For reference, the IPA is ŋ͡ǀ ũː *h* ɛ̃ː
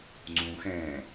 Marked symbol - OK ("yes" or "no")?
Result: no